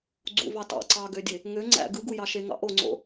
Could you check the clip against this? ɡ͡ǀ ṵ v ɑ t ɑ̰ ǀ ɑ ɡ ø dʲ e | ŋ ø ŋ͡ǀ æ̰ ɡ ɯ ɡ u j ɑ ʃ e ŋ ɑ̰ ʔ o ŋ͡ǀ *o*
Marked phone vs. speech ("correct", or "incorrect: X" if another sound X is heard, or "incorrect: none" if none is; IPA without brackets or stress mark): incorrect: o̰